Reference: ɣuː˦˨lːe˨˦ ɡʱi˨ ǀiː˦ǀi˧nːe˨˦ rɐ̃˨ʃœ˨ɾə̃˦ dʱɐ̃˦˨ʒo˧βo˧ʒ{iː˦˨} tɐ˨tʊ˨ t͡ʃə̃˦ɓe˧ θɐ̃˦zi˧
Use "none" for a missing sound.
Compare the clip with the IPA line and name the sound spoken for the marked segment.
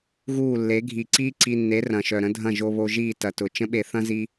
iː˦˨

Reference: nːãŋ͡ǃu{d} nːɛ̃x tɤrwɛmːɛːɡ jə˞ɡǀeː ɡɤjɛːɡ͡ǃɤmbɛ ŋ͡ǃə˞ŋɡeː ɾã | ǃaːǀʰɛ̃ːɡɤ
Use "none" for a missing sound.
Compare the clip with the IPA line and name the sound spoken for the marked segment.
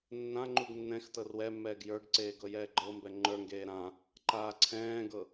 ɡ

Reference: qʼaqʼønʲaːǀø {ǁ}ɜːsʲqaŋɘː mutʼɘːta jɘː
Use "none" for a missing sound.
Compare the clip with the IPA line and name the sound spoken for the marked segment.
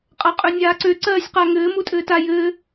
ǀ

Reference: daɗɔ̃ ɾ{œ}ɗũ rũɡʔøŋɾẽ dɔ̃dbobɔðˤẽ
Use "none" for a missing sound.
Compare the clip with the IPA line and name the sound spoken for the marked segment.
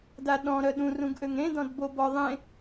œ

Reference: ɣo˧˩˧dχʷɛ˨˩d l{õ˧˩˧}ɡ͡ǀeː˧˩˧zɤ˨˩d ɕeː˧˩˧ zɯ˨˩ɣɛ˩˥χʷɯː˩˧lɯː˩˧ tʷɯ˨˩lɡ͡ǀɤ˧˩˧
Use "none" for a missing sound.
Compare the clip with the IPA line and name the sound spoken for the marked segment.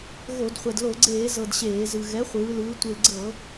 o˧˩˧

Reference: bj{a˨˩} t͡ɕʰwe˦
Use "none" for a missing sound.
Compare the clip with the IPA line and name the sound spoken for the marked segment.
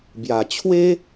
a˨˩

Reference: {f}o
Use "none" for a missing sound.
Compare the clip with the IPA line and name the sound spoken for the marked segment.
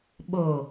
ɓ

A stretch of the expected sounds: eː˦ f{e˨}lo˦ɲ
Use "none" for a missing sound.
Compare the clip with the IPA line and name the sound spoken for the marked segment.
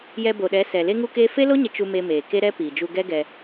e˦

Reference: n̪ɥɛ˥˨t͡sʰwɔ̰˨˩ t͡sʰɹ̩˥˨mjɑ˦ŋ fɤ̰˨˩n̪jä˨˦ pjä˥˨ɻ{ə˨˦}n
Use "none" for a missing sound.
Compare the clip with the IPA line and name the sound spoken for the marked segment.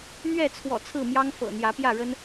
ə˦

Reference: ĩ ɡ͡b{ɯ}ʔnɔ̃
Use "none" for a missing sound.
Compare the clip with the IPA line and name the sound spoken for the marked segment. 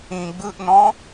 ɯ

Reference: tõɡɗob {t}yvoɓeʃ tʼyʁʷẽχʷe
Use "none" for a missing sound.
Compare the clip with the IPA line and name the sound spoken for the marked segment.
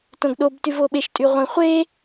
t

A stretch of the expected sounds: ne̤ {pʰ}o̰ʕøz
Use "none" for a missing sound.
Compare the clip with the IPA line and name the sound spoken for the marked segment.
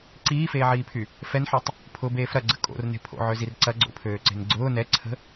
pʰ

